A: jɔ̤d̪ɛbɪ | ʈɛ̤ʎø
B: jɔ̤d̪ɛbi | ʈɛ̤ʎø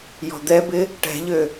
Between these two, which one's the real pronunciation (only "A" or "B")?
A